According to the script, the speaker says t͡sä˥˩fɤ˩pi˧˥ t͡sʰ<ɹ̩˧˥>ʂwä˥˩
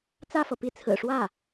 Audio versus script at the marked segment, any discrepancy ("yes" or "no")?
yes